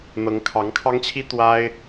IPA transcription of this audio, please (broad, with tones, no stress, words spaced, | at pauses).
n̪ɤ˧˥ŋkʰɑ˧˥ŋkʰɑ˥ŋt͡ɕʰi˥ t̪wa˥ɪ̯